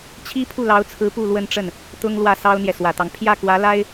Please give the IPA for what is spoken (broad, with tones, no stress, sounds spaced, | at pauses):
t͡ɕʰ i˥ pʰ u˥˩ l ɑ˧˥ ʊ̯ t͡sʰ ɹ̩˧˥ p u˥˧ l w ə˥˧ n ʈ͡ʂ ə˥˩ n | t̪ ʊ˥ ŋ l w ä˥˩ s ɑ˥ ʊ̯ n̪ j ɛ˨ s w ä˨˩ t̪ ɑ˦ ŋ pʰ j ä˥˩ k w ä˧˥ l a˥ ɪ̯